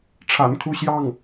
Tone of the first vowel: low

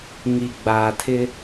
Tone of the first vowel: low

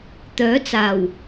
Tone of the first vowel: rising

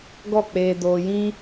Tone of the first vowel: falling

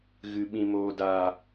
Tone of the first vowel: low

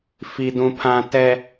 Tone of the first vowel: low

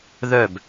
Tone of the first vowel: falling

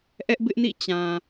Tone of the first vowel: high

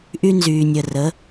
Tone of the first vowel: high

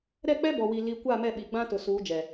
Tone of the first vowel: falling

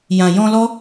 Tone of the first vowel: low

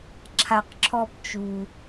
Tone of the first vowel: high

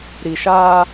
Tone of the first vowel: low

